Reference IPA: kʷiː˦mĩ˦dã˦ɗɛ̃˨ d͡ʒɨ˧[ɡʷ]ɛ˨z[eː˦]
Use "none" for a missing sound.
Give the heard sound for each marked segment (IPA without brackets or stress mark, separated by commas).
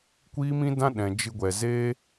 ɡʷ, eː˦